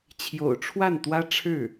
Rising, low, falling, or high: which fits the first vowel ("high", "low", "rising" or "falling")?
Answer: low